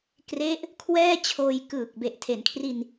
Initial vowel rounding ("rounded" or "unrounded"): unrounded